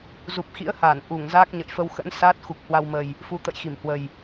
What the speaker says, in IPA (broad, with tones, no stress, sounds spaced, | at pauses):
z u˨˩ p̚ x ḭ˧˥ ə̯ h aː˧˩ n ʔ u˧˩ ŋ z aː˦˥ k̚ ɲ ə̰˧˨ j f ə˧ w x ə̰˧˥ n s aː˦˥ t̚ x u˨˩ k̚ h w a˧ w m ə˨˩ j | f u˧ t̪ ə̰˧˨ j x i˧˩ m h w ə˨˩ j